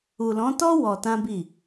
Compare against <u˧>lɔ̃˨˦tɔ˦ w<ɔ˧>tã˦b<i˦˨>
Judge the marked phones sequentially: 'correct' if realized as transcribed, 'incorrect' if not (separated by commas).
incorrect, correct, correct